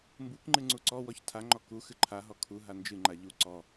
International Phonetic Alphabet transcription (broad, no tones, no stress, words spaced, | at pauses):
mbukŋ͡ǃɨ ŋ͡ǀuǀɔwɔç tʰaŋ͡ǃɔ ku xɨǃʰaɦɔ kʰu ɦand͡ʒɨŋ͡ǃa ʎu ǀɔ